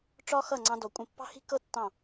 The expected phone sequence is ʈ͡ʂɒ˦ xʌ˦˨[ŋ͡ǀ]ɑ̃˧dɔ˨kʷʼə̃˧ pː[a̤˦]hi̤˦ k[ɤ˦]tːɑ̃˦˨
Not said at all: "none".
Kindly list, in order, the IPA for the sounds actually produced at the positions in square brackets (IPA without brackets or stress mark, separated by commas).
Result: ŋ͡ǀ, ɑ̤˦, ɤ˦